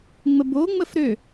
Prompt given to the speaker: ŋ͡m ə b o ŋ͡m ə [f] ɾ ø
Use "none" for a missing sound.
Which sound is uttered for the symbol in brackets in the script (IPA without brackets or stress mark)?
f